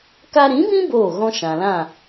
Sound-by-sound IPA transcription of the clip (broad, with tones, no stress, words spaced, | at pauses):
ka˧ɾĩ˨˦bĩ˦ boː˦˨ɣɔ̃˦ ʃã˨lã˦˨